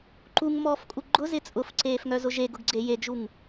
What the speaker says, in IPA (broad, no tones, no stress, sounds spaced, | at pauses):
ǃ u ŋ m ɔː f kʼ u ɡ͡ǃ ʊ z ɪ t͡sʼ ʊ f ǀ eː f ŋ œ z ʊ ʒ e ɡ ʊ ɡ ɡ͡ǀ e j e ɡ ʒ u ŋ